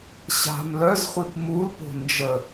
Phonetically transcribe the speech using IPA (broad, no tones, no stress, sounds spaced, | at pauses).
ɕ a̤ m l œ z χʷ i p m u l p o̤ n d͡ʒ ə